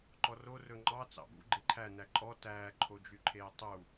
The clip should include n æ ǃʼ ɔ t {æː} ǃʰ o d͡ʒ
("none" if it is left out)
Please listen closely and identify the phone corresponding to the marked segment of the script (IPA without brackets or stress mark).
æː